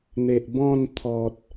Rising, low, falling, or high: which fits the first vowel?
low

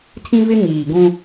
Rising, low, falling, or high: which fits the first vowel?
high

